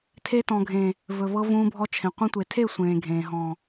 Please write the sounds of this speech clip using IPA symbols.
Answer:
tʰ e˧ t ɔ̃˨ ɡʱ ẽː˨ | v ɵ˨ v ɤ˧ v ũː˧ bʱ ɔ˧ t͡ʃʰ ẽ˨ qʷ ẽ˧ tʷ e˨ tʰ e˦˨ sʷ ẽː˨ ɡʱ ẽː˨ ɦ ɔ̃ː˨

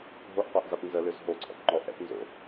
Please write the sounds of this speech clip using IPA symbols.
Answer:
ɦ o ʔ qʷ a ʔ z a p n z ə l ø z ɦ o ǀʰ ɔ̰ p ŋ͡ǃ ɔ ʔ ɛ̰ p n z o̰

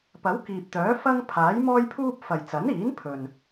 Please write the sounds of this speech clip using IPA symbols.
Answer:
p ɐ˨˥ w k iː˨ p̚ t̪ œː˨˥ f ɐ˥ ŋ pʰ aː˨˥ j m ɔː˥ j pʰ uː˥ p̚ f ɐ˨ j t͡s ɐ˨˥ n iː˨˥ n pʰ ɵ˨ n

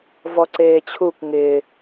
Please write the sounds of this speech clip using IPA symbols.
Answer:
v ɔ ǀ eː t͡ɕʰ u kʷ ŋ ɪː

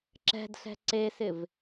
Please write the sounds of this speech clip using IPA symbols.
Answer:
ǁ ɛ̤ d ɬ ɛ̤ ǀ e s ɪ v

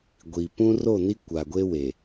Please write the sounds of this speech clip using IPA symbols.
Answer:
ɡʷ i˨ p ũ˦ r o˦˨ n i˦ kʷ a˨ ɡʷ e˦ w e˨

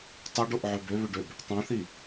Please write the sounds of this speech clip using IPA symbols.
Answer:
tˤ ø ɖ o ʔ ʕ ø b ø β ø ɖ ø b | tˤ ũ θ i

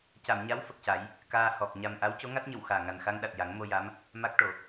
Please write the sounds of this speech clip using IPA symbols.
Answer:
c a˨˩˨ m ɲ a˧˥ w f ə˨˩ k̚ c a˨˩˦ j | k aː˧ h ɔ˨˩ k̚ ɲ a˨˩ m ʔ a˧˥ w c o˧˥ ŋ a˦˥ t̚ ɲ ə˨˩˨ w x aː˨˩ ŋ a˨˩ n x a˧ ŋ ɗ a˨˩ t̚ j a˨˩˦ ŋ m o˧ j a˧˥ m | m a˦˥ k̚ ʈ o˨˩˨

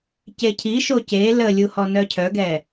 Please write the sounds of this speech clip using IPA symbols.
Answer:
c e cʰ i ʃ o c e l ə lʲ u h ɔ n œ cʰ œ ɡ ɛ

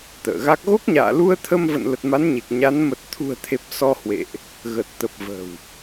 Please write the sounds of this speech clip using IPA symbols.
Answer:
t̪ ə̰ː˧˨ ɣ a˦˥ k̚ ɣ o˦˥ k̚ ɲ a̰ː˧˨ l u˧ ə̯ t̪ʰ ə˧ m v ə̰˧˨ n l ə˨˩ t̚ m a˨˦ n ɲ e˨˩ k̚ ɲ a˨˦ n m ə˨˩ t̚ t̪ʰ ṳ˨˩ ə̯ t̪ʰ e˨˩ p̚ s ɔ˧ h w ḛ˧˨ ʔ | ɣ ə˨˩ t̚ t̪ ə˨˩ p̚ v ə̤˨˩ w

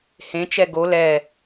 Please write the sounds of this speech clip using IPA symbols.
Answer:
h ẽ t͡ʃ ɛ ɡ o l ɛ

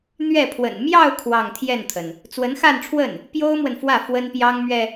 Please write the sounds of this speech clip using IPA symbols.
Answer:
n̪ ɥ ɛ˥˩ pʰ w ə̰˨˩ n m j ɑ˥˧ ʊ̯ kʰ w ɑ˥˧ ŋ t̪ʰ j ɛ˥˩ n t̪ʰ ə˩ n | t͡s w ə˧˥ n x a˥˧ n ʈ͡ʂʰ w ə˥˩ n | p j o˥ ʊ̯ m w ə˨ n f w ä˥˩ f w ə˥ n p j ɑ˥ ŋ m ɥ ɛ˨

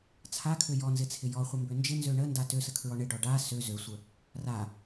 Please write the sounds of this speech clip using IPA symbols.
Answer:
t͡sʰ a kʰ ø j ɔ n z ɪ t͡sʰ ɪ j ɔ χʷ ɪ m b ø n d͡ʒ ɪ n z ø ɳ ə n d a t ø s ə kʰ ɹ ɔ ɳ ɪ ɖ ɔ ɖ a s ø z ø sʷ ə | r a

